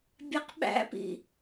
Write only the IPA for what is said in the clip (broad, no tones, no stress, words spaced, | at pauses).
bʲɛqɓæ̰pḭ